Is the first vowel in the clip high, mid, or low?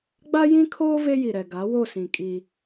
low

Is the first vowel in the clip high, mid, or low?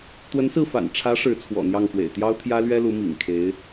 mid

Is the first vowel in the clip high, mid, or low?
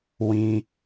high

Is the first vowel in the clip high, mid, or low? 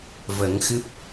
mid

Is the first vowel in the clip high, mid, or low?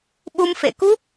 high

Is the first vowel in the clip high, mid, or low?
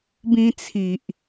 high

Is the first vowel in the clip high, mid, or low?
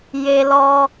mid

